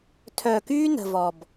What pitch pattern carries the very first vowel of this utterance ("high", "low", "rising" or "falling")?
low